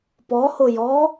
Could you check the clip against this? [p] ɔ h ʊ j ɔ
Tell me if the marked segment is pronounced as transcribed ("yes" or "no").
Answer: yes